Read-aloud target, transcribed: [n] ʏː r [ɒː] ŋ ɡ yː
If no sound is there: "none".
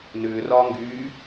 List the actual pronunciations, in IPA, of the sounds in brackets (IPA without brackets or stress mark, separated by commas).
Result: n, ɒː